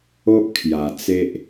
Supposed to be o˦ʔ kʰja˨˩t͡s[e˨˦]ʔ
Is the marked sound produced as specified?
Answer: no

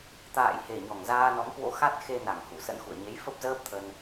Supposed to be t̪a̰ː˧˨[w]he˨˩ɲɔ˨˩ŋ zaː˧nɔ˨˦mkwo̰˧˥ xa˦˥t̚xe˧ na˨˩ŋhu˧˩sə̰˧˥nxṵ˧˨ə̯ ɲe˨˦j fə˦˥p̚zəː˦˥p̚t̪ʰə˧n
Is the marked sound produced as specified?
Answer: no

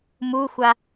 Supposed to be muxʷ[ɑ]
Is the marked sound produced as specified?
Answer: no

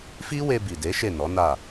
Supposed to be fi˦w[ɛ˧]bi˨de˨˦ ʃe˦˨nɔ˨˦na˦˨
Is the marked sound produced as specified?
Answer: no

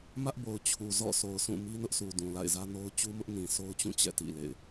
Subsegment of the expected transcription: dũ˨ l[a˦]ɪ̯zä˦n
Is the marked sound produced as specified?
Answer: no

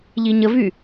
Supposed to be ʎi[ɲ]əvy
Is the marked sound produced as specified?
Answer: yes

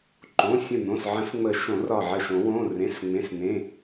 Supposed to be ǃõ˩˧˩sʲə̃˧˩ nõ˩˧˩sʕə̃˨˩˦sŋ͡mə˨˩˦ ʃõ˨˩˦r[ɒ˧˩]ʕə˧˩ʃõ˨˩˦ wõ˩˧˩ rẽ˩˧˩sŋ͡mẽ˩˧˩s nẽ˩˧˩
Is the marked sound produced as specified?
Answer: yes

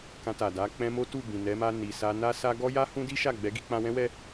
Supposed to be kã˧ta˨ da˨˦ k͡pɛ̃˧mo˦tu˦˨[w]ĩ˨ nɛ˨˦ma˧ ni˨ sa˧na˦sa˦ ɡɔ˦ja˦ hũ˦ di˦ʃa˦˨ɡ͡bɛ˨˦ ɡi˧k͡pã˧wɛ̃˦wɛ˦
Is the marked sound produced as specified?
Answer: no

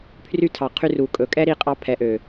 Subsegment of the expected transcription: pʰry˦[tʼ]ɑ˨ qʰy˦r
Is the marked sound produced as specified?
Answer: no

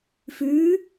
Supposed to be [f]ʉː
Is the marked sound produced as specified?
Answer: yes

